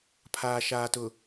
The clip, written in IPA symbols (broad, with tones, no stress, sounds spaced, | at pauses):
pʰ aː˨ ʃ aː˨ t ʊ˨